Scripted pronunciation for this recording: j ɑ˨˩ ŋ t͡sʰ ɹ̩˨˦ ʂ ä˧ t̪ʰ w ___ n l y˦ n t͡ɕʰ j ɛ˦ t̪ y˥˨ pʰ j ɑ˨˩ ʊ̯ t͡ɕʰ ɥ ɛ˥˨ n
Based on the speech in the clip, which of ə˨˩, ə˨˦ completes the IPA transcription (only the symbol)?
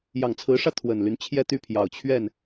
ə˨˩